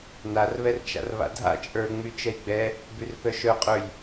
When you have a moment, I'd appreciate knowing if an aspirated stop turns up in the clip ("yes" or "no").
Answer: no